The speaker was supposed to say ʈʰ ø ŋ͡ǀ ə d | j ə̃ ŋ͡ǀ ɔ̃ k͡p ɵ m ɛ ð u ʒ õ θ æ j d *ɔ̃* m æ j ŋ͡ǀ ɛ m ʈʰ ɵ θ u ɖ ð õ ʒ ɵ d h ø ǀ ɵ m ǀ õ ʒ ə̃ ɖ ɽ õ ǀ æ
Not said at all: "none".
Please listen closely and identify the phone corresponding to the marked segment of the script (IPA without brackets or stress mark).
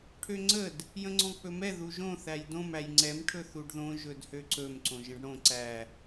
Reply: õ